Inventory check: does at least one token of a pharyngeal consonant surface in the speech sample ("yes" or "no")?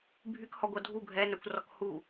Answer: no